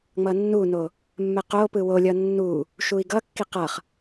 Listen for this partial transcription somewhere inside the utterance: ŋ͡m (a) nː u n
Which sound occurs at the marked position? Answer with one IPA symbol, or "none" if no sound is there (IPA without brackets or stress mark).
ʌ